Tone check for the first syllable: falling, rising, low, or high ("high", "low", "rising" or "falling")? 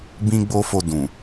high